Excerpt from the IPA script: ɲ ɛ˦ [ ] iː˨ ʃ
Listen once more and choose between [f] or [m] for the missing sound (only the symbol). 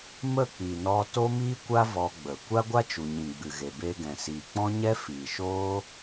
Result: f